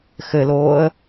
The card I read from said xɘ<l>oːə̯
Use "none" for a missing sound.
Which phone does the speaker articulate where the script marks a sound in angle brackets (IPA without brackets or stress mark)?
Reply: l